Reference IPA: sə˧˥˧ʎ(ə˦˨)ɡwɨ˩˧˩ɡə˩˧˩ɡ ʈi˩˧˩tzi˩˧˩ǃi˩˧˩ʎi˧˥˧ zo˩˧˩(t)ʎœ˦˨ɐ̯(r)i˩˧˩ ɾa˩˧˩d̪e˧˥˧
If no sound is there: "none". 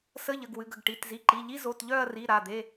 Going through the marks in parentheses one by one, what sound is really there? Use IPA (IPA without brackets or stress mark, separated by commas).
ə˩˧˩, t, r